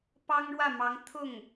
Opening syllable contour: high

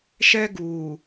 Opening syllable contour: high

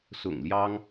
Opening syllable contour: low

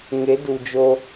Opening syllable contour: rising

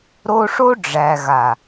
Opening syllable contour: high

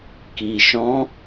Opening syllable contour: low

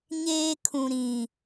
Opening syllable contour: high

